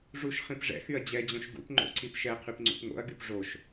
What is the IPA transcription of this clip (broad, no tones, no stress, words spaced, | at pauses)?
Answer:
ʐuʃ χĩpʐɛ̰xyɐ̯ d͡ʑɛd͡ʑõʃ ɡṵp ŋ͡ǃo̰ǀipʃɛqʰyp ŋ͡ǀṵpŋo̰ɐ̯ɡyp ʐoʃ